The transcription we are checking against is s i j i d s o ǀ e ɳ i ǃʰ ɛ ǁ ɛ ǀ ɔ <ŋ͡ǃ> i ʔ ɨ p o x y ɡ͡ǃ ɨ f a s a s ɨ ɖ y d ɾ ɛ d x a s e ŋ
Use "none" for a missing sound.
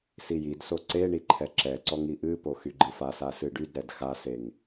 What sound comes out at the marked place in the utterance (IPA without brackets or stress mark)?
ŋ